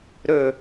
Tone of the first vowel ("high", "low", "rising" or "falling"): low